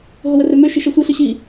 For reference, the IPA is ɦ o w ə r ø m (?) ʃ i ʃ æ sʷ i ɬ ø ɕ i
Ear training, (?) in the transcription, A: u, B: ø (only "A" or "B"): B